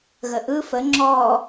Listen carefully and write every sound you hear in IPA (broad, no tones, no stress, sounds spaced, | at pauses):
ɣ ə ʔ ɯ f ə ŋ͡ǁ ɔ